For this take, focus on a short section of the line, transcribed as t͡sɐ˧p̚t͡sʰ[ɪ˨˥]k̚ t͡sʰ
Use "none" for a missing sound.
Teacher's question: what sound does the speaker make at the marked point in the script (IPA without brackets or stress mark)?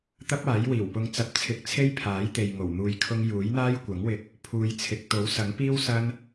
ɪ˧